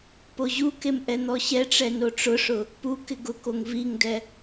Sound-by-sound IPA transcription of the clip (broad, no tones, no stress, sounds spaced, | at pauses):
p o ʑ u k e m ʔ ɛ n̪ ɔ ɕ ɛ ʈ͡ʂ ɛ n o ʈ͡ʂ ʊ ʂ ʊ | p u k ɪ ɡ ʊ k o ŋ v i ŋ d ɛ